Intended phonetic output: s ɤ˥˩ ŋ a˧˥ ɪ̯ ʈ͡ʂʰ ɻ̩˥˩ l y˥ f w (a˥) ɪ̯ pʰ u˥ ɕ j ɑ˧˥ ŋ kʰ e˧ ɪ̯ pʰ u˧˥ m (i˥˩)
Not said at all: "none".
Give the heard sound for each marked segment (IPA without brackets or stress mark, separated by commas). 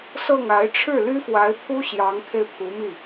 a˧˥, i˥˩